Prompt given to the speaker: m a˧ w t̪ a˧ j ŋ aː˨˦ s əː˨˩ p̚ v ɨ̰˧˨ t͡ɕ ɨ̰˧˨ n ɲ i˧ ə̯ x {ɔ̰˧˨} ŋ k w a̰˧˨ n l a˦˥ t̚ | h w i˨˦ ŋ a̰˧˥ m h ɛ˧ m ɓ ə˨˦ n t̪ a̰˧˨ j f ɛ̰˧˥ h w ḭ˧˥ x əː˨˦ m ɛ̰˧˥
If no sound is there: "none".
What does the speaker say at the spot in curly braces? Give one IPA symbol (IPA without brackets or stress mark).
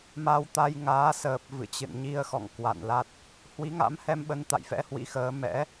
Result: ɔ̰˧˨